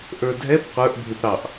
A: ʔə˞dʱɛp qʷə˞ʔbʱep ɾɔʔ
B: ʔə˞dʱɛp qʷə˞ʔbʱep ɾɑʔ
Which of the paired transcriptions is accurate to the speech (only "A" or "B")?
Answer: B